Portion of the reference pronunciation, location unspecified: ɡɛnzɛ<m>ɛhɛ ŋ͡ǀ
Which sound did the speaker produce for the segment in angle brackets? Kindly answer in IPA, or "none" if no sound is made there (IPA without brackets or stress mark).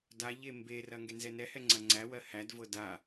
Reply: n